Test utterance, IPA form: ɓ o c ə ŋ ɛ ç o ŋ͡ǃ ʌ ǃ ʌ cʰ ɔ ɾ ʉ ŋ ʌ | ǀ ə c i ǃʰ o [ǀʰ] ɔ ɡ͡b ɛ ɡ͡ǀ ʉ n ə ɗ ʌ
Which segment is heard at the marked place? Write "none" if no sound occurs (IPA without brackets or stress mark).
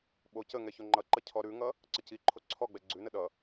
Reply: ǀʰ